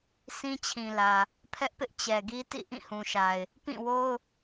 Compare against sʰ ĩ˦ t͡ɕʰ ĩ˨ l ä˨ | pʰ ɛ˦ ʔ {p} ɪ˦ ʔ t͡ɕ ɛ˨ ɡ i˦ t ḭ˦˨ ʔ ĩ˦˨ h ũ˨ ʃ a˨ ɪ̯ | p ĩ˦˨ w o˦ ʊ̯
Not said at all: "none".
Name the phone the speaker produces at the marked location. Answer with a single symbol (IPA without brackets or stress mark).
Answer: p